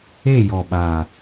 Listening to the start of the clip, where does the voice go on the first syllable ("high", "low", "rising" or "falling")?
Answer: falling